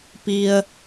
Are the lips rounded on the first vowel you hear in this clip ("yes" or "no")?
no